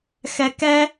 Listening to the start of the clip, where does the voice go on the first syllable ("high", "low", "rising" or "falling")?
high